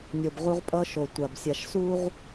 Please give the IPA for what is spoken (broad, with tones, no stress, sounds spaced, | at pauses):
nʲ o˨ b ʁ u˦ ʁ pʼ ʌ˦ ʃ o˨ tʷ a˨ b sʲ a˨ ʃ s u˦ ʁ